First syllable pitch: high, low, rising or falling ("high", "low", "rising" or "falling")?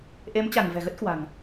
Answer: rising